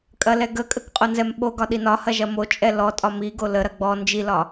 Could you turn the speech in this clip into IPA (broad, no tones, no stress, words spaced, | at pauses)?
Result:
kʼɐlɛɡəkʼək qʼonzɛmɓoɡɒ ɗinɒhɐ ʒɐmot͡ʃʼɛ lɔtʼɒ miɡo ləɾɐ ɡ͡bɔ nd͡ʒilɒ